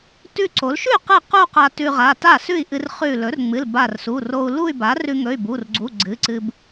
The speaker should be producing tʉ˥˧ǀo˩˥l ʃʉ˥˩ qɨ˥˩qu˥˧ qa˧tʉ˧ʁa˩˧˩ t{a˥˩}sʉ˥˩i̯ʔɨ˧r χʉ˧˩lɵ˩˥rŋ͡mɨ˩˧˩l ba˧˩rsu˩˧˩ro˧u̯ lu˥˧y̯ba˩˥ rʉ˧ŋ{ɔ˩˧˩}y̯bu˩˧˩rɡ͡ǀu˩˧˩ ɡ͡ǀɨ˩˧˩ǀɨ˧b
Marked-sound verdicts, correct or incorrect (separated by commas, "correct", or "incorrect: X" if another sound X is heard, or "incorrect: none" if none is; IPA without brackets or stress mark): correct, incorrect: ɵ˩˧˩